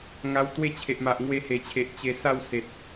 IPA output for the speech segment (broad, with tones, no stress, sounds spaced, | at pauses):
ŋ a˧ w t̪ w e˦ t͡ɕʰ e˨ ʔ m a˨ ʔ ŋ w e˧ h e˨˩ t͡ɕʰ e˨ ʔ t͡ɕ e˧ s a˥˧ w s e˨ t̚